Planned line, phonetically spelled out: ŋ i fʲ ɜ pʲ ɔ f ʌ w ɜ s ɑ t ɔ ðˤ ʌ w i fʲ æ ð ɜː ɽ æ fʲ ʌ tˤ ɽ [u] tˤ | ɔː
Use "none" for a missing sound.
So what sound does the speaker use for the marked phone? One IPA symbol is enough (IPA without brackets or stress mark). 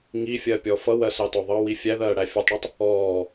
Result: u